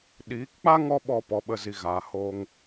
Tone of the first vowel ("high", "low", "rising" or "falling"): rising